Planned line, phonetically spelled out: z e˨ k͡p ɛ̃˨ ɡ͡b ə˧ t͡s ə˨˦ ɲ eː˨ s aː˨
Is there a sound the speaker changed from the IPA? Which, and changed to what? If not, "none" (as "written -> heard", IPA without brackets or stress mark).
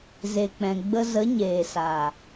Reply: t͡s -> z